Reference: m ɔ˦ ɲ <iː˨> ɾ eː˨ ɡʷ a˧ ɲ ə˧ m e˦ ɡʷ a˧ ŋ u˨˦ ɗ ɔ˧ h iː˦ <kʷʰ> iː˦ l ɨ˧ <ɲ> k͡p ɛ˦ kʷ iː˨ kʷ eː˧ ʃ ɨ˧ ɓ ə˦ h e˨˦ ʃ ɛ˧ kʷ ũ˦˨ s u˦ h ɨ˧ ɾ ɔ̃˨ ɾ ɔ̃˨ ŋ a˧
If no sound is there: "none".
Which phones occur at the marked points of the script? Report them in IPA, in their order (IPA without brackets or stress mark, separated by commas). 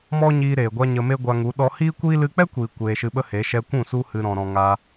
iː˧, kʷ, none